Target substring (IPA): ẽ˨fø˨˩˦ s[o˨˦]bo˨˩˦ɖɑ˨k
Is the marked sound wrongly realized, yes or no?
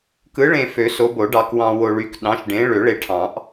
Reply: no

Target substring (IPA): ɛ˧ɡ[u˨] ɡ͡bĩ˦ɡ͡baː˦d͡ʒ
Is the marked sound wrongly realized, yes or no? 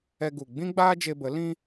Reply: no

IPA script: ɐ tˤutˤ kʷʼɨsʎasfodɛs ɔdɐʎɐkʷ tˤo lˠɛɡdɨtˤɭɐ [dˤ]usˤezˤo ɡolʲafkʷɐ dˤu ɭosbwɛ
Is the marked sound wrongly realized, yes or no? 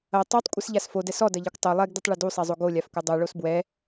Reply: yes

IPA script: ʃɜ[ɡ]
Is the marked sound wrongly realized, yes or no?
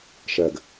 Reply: no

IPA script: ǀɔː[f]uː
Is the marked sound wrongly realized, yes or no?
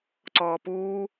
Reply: yes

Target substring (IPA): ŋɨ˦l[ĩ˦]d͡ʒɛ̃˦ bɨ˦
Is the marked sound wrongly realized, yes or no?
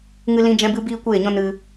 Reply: no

